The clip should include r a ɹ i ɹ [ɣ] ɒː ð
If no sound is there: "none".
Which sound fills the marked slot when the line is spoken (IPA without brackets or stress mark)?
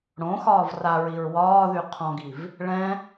w